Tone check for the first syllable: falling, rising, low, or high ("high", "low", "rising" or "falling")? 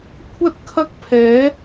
high